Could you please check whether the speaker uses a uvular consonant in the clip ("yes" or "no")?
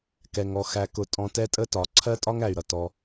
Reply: no